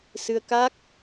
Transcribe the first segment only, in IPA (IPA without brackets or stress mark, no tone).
s